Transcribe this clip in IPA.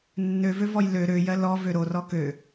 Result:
nː ø v ø v ɔ j l ø ɾ ø j ɜ l ɔ v ø ɾ o r ɔ k ø

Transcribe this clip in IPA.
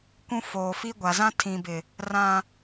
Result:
kʷ ũ˦ f oː˨ f i˦ ɡʷ a˨ z ã˦ tʰ ĩ˨ b ɪ˨ | r ã˦

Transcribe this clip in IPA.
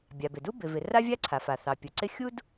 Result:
bʲ a˩ b ɪ˩ d u˥ b ɪ˩ v ɪ˩ r a˥ vʲ a˥ ǀʰ a˩ f a˩ θ ɑ˩ pʲ u˩ ǀ ɪ˥ xʲ u˥ d

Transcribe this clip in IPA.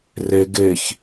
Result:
r e ɡ e ç

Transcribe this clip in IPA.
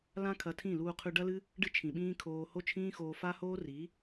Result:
l ã˦ kʰ ɐ˧ tʰ ĩ˦˨ l uː˧ qʰ ʉ˧ ɖ ɐ˦ l ɨ˦ | ɖ ɨ˦ t͡ʃʰ ĩ˨ ɓ ĩː˦ kʰ oː˧ h o˦ t͡ʃʰ ĩː˦ x oː˧ f a˦ h oː˦ r i˨˦

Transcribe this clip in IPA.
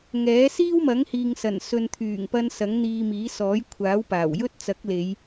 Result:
ŋ ɛː˨˥ s iː˥ w m ɐ˨˥ ŋ h iː˨ ŋ s ɐ˨˩ n s ɵ˨ n t̪ʰ yː˨˩ ŋ p ɐ˧ n s ɐ˨˥ ŋ n̪ iː˧ m iː˨˥ s ɔː˨˥ j kʷʰ aː˨˥ w p aː˨˩ w j ɵ˥ t̚ t͡s ɐ˨˥ k̚ l e˨˧ j

